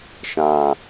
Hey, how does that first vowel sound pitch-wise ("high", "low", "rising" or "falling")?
low